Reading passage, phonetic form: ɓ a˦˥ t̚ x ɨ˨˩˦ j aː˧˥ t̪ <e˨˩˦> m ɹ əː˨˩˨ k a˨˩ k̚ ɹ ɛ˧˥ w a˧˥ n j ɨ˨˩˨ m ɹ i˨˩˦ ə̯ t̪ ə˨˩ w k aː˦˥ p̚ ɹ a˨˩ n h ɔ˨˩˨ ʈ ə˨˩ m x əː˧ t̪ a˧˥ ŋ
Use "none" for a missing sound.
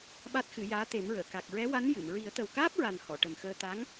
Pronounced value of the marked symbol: e˨˩˦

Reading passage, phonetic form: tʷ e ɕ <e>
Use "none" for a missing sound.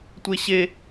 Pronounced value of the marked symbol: e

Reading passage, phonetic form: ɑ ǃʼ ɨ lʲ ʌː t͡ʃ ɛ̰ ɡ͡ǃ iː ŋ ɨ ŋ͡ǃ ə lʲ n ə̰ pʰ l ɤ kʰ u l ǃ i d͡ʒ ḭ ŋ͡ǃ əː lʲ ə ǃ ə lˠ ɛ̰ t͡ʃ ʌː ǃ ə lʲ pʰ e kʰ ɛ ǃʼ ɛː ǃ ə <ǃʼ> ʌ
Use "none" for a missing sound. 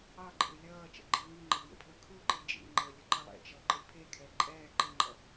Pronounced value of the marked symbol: ŋ͡ǃ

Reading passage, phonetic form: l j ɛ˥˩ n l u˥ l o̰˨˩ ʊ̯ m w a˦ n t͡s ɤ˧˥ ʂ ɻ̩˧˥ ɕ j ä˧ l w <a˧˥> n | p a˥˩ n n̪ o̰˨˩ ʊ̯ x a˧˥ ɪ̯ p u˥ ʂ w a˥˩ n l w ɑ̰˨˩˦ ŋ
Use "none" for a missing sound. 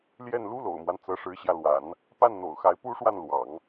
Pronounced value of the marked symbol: a̰˨˩˦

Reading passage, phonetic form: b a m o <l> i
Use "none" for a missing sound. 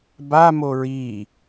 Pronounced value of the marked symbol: ɹ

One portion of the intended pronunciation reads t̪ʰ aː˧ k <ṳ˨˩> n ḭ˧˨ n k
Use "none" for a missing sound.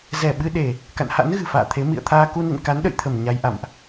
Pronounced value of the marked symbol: u˧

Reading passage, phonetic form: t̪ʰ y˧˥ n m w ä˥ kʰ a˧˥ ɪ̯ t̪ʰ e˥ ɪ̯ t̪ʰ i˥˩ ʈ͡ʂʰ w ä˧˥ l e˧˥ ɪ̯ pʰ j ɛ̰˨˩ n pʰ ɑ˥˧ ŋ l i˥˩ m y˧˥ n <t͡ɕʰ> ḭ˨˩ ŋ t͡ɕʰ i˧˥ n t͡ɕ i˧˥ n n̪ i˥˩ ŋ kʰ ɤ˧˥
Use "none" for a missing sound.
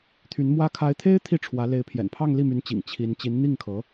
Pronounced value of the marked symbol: t͡ɕ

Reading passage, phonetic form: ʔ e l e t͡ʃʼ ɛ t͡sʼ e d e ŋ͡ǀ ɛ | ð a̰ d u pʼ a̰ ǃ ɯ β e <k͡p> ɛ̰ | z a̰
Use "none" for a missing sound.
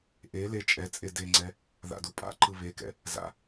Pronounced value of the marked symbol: k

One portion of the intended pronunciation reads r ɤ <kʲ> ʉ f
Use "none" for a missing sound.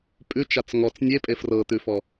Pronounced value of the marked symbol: t̪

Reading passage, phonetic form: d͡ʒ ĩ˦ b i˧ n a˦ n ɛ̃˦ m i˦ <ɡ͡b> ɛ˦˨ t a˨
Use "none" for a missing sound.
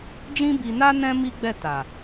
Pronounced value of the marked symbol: ɡ͡b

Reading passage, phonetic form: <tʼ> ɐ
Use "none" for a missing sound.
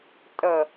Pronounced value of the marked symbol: tʼ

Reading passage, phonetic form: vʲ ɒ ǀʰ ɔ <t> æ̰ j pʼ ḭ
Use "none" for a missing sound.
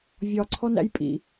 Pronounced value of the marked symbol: n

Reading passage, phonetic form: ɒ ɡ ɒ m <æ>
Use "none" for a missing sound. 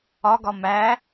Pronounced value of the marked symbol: æ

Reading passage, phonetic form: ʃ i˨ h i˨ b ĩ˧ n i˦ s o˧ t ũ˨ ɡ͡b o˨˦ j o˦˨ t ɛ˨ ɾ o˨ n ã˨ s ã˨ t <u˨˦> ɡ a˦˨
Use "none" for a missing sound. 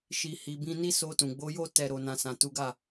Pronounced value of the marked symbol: u˨˦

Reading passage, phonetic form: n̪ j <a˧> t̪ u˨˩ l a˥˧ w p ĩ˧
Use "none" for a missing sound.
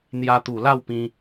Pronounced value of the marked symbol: a˧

